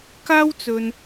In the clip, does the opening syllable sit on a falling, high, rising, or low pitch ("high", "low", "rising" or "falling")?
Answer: high